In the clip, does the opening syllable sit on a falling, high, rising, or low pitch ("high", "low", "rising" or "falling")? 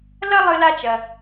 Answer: high